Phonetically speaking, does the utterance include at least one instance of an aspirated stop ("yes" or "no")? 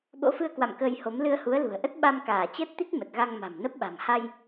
no